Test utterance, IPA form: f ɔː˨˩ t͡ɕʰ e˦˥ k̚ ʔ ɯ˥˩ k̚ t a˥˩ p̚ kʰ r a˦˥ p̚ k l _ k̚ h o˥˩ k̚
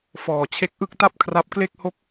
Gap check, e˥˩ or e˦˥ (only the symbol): e˥˩